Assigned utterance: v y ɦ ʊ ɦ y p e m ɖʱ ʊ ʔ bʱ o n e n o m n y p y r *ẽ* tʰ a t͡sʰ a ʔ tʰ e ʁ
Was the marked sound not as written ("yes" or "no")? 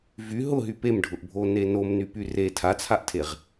yes